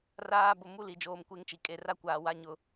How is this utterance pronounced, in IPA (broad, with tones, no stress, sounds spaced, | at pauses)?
r aː˨ b ʊ˨ m u˦ l i˨ d͡ʒ oː˨ m kʷ e˦ ŋ t͡ʃ i˨ kʼ e˨ r a˦ kʷ aː˨ w a˦ ɲ ʊ˦